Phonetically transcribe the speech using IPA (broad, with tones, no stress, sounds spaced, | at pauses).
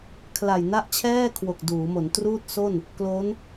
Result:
kʰ l a˨˩ j n a˥˩ ʔ t͡ɕʰ ɛː˥˩ kʰ w o˨˩ k̚ d uː˩˦ m o˩˦ n t r uː˥˩ t̚ s o˥˩ n | k l o˦˥ n